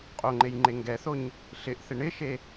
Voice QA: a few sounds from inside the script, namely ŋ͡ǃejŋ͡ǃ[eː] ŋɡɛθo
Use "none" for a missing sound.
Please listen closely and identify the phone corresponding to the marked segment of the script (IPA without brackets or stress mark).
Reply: e